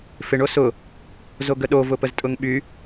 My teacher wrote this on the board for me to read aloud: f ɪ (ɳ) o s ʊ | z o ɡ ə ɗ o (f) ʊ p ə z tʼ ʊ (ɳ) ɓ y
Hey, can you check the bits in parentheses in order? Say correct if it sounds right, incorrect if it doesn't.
correct, incorrect: v, incorrect: ŋ

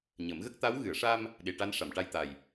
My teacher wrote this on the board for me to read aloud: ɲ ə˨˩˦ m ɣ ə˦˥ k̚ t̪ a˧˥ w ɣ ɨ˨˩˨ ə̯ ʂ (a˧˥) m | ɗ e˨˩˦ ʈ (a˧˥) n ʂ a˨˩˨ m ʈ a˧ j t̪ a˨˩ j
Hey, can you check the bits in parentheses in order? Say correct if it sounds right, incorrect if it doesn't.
incorrect: a˧, correct

